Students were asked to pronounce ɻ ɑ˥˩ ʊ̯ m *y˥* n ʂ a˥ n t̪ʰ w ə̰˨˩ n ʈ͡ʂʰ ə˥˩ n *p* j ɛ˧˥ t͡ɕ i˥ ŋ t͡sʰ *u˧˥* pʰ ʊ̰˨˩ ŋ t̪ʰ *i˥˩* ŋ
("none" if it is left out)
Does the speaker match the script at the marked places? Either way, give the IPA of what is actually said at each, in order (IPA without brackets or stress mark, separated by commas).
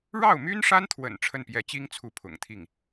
y˥, p, u˧˥, i˥˩